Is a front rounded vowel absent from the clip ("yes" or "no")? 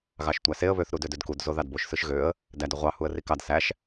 no